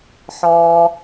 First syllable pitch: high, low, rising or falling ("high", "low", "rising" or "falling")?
high